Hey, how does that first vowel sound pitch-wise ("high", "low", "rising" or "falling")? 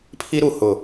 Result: high